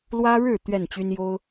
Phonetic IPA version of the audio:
l w ä˦ ɻ ɻ̩˥˨ t̪ ɥ ɛ˥˨ n t͡ɕ y˦ n j o˦ ʊ̯

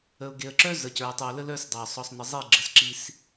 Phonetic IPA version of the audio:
ə˨ ʊ̯ ɡ e˨ ə̯ ǁ œ˦ z ə˨ c ə˞˨ ɪ̯ tˤ ɨ˨ ʊ̯ l ə˦ l œ˦ s dˤ ə˞˨ sˤ ɔ˨ sˤ n ə˨ zˤ e˦˨ ɡ͡ǁ ə˦˨ s ǁ i˦ s

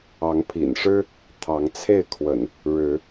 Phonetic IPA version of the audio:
ɑ˨˦ ŋ pʰ ḭ˨˩ n ʂ ɻ̩˦ | t̪ʰ ɑ˨˦ ŋ t͡sʰ e˥˨ ɪ̯ kʰ w ə̰˨˩ n | ɻ ɻ̩˨˦

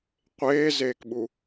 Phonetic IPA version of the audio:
qʷ eː z eː k ɓ u

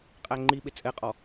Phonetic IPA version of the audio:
qʼ æ ŋ͡ǃ i ɓ ɪ t͡sʼ ɛ qʼ ɔ

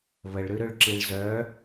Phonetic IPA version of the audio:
β ə ɭ ɾ ʉ ɾ ø ɭ ǁ i ɭ z œ

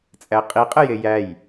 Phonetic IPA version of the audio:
t͡sʼ æ qʼ i qʼ ɘ j e j æ j

